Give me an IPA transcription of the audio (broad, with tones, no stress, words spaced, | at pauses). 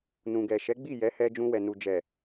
nũ˨ɡɛ˨ʃɛ˨˦ɡ͡bi˦˨ jɛ˨˦hɛ˧ d͡ʒũ˧wɛ˨nu˨ d͡ʒɛ˨